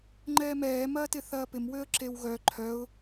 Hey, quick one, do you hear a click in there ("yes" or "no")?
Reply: yes